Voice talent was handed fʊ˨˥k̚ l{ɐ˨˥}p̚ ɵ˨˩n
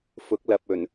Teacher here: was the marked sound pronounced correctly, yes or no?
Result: no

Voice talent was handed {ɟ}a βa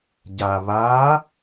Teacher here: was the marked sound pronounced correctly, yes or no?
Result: yes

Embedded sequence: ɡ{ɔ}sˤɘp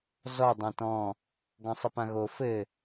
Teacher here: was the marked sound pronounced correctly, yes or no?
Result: no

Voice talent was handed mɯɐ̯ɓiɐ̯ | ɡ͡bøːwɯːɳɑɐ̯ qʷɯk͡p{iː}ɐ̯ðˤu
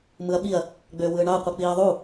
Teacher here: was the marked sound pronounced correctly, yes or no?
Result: yes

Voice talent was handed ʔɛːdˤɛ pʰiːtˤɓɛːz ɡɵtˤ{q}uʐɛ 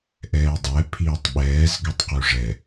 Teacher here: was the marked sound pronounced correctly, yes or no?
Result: yes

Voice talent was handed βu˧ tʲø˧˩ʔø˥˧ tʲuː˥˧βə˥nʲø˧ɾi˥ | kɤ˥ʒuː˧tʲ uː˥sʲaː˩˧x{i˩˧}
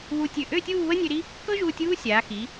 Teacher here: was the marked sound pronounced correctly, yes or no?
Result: yes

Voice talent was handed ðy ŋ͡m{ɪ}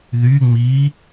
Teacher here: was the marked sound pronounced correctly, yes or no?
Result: no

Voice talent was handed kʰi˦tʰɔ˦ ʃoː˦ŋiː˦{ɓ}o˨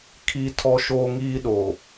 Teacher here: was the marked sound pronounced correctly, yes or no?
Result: no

